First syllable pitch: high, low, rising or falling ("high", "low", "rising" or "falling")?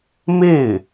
falling